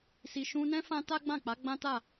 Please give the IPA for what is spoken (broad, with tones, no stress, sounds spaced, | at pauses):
s i˨ ʃ ũ˧ n ɛ̃˦ f ã˦ t a˦ ɡ͡b ã˦˨ k͡p a˨˦ ɡ͡b ã˦ t a˦˨